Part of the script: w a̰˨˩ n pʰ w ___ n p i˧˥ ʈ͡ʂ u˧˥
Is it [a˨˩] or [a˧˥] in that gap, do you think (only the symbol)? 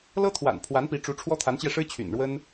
a˧˥